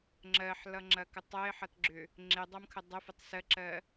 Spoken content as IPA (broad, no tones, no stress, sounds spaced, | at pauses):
ŋ͡ǁ ɜ ħ l ʌ ŋ͡ǁ ɐ k ə tˤ ɜ ɪ̯ ħ ʌ t ɡ͡ǁ ʏ | ŋ͡ǁ e dˤ ʌ m kʰ ə dˤ ə f ə tˤ s ɜ ǁ ɜ